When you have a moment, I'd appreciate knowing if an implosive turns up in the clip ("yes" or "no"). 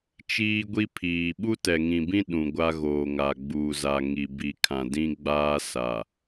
yes